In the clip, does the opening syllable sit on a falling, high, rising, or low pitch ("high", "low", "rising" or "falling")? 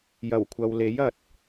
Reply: low